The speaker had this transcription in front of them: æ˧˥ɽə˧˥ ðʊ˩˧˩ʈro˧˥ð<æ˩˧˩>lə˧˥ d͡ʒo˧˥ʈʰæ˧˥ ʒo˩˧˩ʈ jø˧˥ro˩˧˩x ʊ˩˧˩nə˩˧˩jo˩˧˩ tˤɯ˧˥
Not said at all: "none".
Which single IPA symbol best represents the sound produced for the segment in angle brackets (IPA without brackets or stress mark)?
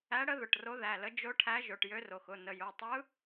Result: æ˩˧˩